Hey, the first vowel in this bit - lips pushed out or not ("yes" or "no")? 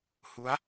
yes